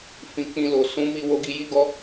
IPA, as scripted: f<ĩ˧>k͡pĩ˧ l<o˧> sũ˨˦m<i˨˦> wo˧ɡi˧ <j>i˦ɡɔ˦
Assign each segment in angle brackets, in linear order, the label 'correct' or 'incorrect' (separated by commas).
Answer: correct, incorrect, incorrect, correct